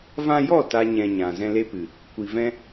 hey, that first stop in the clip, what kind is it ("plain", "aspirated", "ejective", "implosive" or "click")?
plain